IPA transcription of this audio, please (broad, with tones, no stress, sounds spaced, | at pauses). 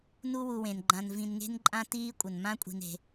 n u˦ w u˨ w ẽ˩ n ɡ͡ǃ ã˨ n v ĩ˨ n ŋ e̤˦ n ǃʼ ã˦ t iː˥ kʷʼ ə˩ n m ã˥ kʷʼ i̤˨ n e̤˩